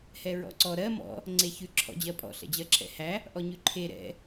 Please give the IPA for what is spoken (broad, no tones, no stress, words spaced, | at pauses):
hɛɹɔ̰ǀɔ ɾɜ mɔ̰ | ŋ͡ǀeçʉ ǁʰɔ̰d͡ʑɜpʼɔ̰ ɬɛ̰d͡ʑɜǁʰɛ̰hæ | ʔɔɲʉǃʰe ɾɛ̰